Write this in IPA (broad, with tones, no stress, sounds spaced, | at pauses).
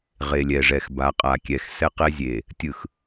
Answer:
ʁ e˨ lʲ ɛ˨ ʐ ɛ˨ x b a˨˦ qʼ a˨ kʲ ɛ˨ x s ɛ˦ q ɛ˦ zʲ e˨ | tʲ ɯ˨ x